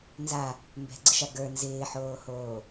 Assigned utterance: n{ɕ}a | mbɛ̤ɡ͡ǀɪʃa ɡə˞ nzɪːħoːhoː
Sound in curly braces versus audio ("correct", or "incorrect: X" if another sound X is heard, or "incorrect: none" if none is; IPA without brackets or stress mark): incorrect: z